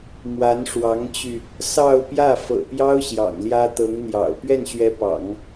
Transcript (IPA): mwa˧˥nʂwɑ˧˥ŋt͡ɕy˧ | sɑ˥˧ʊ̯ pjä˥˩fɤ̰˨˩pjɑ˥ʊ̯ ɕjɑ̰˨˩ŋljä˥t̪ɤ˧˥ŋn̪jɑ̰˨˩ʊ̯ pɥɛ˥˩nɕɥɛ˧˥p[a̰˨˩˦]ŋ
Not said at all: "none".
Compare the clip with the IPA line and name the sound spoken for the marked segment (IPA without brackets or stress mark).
ɑ̰˨˩˦